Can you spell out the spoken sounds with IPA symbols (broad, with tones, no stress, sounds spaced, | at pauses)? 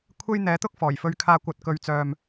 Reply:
kʷʰ e˥ j n̪ ɛː˨˥ t̪ ʊ˥ k̚ f ɔː˨˩ j f ɵ˧ ɥ kʰ aː˧ kʷ ɐ˨˥ t̚ k ɵ˧ ɥ t͡s œː˧ m